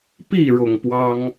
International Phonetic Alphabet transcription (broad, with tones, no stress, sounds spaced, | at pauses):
p i˥˨ ɻ ʊ˨˩ ŋ p w ɑ˦ ŋ